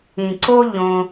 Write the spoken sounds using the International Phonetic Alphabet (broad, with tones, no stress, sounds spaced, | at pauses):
ĩ˨ ǀ o˦ ʎ õ˧